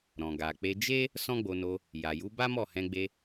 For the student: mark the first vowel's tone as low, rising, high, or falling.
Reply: low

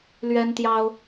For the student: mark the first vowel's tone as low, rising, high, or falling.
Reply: high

